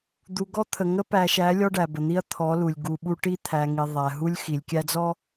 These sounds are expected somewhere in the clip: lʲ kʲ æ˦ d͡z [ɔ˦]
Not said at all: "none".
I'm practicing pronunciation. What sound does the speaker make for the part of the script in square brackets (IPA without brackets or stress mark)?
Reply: ɔ˦